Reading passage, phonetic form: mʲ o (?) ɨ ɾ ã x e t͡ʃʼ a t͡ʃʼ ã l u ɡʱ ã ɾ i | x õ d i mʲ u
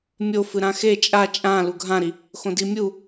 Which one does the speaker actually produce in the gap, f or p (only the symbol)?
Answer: f